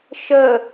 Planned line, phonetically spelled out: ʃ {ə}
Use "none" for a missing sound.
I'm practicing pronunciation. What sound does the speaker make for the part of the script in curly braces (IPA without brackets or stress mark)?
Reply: ə